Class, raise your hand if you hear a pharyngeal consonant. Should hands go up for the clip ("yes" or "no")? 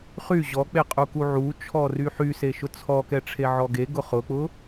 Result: yes